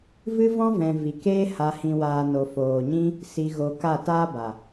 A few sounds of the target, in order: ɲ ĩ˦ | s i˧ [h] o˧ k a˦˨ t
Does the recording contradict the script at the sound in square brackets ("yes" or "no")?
yes